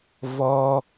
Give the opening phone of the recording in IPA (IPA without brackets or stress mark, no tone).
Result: v